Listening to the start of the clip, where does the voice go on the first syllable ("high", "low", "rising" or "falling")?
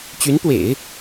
rising